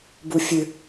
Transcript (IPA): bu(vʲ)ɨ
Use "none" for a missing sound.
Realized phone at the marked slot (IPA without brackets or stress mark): fʲ